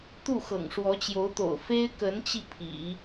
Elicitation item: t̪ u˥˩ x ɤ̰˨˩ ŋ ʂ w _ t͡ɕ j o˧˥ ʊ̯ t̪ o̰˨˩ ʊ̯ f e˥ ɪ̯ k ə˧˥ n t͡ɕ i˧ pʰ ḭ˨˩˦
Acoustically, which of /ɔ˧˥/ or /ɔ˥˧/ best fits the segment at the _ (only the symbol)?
ɔ˧˥